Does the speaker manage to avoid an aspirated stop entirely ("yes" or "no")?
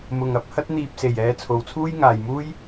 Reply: no